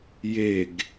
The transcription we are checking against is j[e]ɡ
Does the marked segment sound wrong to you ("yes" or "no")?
no